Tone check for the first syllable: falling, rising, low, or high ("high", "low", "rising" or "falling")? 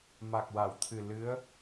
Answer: low